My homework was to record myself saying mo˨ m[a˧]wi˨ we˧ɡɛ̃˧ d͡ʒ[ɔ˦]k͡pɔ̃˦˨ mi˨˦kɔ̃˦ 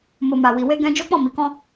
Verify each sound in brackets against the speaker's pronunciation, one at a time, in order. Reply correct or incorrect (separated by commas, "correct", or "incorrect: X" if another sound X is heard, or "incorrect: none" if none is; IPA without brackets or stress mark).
incorrect: a˨, incorrect: o˦